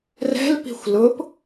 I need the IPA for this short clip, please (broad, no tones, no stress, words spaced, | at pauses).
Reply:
rɛ̤lpi̤xʷ lʊp